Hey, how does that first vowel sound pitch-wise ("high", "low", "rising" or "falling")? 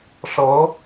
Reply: rising